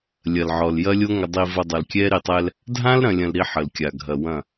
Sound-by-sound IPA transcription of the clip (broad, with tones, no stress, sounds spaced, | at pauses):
lʲ ɐ˨ l ʕ ɔ˨ l j ɐ˦ lʲ o˦ ŋ ə˨ dˤ i˨ v ɐ˨ dˤ ɐ˨ l kʲ ɛ˦ ɾ i˨ tˤ ɛ˦ l | dʱ ã˦ l ɾ ɐ̃˨ lʲ ɐ̃˨ l ɾ i˦ ħ ə˨ l kʲ a˨ ɡʱ ɐ˨ w ɐ̃˦˨